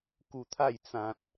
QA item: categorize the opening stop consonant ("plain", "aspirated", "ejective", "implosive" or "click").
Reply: plain